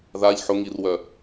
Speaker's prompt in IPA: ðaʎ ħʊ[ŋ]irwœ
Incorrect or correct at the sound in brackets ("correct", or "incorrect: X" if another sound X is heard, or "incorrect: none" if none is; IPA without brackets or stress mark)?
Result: correct